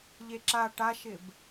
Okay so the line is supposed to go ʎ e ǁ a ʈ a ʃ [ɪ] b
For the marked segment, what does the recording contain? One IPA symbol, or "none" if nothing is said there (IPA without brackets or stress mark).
ɪ